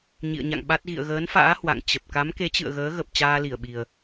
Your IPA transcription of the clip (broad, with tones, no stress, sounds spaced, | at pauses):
ɲ ḭ˧˨ ə̯ ɲ a̰˧˨ ŋ ɓ a˦˥ t̚ ɣ ḭ˧˨ ə̯ ɣ əː˨˦ n f a̰ː˧˥ h w a̰˧˨ ŋ t͡ɕ ə˨˩ p̚ k a˨˦ m k e˨˦ t͡ɕ ɨ̰˧˨ ə̯ ɣ əː˨˦ ɣ ə˨˩ p̚ t͡ɕ aː˧ l i˧˩ ə̯ ɓ i˨˩ ə̯